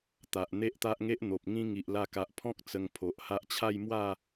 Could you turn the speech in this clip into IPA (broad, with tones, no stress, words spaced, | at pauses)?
t̪a˨ʔn̪e˦ʔt̪a˦ʔŋe˦ʔ n̪o˨p̚ŋĩ˦ ŋi˨ʔla˧ka˨ʔpʰɔ̃˦k̚ t͡sə˧ŋpʰo˨ʔha˦ʔ t͡ɕʰa˥˧jmwa˥˧